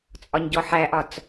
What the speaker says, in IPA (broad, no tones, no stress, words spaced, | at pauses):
t͡sʼɒɲɟɔħæʔɒt͡s